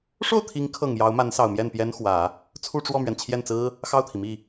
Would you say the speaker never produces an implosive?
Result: yes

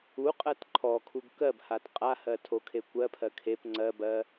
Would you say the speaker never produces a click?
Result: no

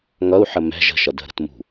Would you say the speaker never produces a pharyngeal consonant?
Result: no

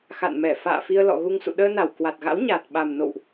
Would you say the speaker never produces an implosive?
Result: no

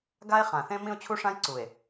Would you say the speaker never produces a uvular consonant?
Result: no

